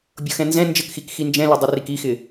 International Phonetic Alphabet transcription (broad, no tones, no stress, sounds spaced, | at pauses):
bʲ ɤ x ɛ̃ n z ɛ̃ n d͡ʒ ə k x i k x i n d͡ʒ ɛ̃ l ɘ dˤ ə r i k i x ɪ